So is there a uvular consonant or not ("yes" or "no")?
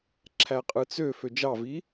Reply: yes